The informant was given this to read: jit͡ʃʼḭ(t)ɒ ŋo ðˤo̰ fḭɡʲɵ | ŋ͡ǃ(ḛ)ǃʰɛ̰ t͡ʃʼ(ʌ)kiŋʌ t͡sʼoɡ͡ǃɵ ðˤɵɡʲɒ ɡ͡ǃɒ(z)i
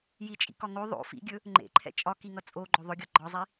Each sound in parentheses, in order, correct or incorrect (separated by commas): incorrect, correct, incorrect, incorrect